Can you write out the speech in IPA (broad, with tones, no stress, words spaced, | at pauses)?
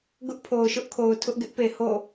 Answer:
ɡʊ˦ʔpʰo˨ʊ̯ʃʊ˦ʔkʰo˨ʊ̯ tʰʊ˦ʔɡɪ˦ʔpe˨ ho̰˦˨